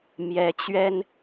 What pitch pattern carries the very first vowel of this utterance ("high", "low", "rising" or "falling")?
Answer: rising